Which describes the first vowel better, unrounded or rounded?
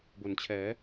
rounded